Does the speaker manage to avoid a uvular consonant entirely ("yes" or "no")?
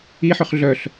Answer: no